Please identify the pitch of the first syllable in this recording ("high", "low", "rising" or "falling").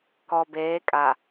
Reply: low